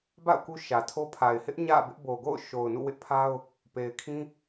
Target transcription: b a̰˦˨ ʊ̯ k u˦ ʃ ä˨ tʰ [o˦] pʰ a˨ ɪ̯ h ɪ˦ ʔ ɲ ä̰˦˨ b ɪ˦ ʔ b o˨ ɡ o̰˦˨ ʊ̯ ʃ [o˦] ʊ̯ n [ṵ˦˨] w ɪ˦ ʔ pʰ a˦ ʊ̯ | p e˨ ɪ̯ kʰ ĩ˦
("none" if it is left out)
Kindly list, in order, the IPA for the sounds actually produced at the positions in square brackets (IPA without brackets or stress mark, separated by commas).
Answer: o˦, o˨, ṵ˦˨